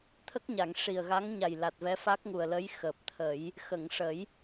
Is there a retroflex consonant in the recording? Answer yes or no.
yes